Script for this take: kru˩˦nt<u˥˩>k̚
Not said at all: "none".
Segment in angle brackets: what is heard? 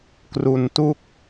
u˥˩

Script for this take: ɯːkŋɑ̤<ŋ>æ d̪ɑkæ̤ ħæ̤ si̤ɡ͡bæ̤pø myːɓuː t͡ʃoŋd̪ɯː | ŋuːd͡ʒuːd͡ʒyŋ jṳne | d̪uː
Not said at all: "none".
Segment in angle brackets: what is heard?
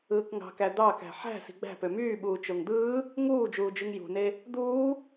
k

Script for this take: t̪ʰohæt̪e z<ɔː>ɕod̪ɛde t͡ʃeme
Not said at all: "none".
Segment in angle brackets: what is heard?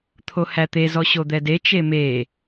ɔ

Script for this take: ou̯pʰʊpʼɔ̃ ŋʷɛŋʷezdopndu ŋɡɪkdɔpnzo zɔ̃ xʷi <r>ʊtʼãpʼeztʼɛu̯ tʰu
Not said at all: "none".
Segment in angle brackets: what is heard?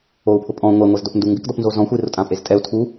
r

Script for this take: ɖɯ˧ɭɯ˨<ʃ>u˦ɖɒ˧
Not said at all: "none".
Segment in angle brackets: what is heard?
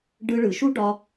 ʃ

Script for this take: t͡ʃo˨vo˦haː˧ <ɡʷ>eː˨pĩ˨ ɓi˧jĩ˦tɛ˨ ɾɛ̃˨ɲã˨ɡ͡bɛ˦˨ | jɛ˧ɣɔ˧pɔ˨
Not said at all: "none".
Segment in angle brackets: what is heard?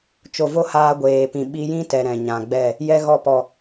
ɡʷ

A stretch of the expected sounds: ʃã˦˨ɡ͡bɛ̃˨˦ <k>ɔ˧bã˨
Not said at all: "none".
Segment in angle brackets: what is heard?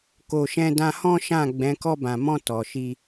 k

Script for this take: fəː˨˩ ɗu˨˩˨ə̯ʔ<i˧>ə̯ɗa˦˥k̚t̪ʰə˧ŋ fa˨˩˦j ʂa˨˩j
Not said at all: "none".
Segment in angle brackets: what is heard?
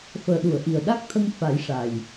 i˨˩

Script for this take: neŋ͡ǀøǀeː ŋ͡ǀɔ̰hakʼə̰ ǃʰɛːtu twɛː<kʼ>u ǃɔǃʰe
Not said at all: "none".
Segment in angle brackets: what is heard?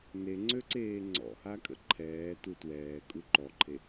kʼ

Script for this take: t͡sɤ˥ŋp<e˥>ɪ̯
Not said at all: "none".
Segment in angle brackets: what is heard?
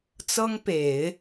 e˨˩˦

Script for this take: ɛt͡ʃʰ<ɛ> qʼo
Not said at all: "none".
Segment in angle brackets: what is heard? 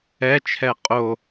ɛ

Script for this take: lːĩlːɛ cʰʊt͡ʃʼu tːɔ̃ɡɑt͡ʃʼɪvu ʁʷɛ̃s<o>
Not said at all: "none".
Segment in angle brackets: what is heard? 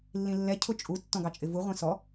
ɔ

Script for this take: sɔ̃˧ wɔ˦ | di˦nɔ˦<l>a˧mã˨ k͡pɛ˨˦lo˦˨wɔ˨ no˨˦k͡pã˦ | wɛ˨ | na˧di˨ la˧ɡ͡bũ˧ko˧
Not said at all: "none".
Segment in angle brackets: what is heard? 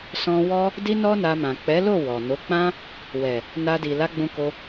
n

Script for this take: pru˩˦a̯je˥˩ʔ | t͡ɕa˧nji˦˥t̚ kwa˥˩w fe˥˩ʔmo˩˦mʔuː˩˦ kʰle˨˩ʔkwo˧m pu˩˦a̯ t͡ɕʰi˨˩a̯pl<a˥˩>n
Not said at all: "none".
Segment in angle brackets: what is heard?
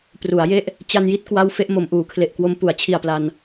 a˧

